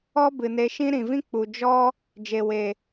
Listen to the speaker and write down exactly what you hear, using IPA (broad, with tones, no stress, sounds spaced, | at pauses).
ɔ˦ b ɨ˨ n e˧ ʃ ĩ˦ ɾ ĩ˨ v ĩ˦ k͡p u˨ d͡ʒ ɔ˦ | d͡ʒ e˨ w e˨